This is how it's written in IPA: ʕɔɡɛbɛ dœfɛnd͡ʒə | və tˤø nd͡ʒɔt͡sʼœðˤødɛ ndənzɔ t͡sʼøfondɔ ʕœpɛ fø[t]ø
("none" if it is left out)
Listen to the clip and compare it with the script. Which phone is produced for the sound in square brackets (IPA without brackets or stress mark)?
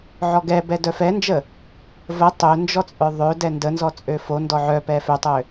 tˤ